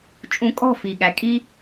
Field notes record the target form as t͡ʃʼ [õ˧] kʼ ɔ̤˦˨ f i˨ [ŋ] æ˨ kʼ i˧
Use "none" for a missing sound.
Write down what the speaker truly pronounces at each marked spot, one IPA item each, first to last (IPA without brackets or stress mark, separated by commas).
ũ˧, ɠ